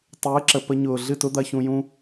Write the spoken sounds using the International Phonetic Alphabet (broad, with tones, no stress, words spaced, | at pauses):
tˤɨː˨˦ǁə˨ pə˧ɲʊː˨ ɮɨ˦˨tʊ˦d̪ɐ˧ çũ˧jũ˦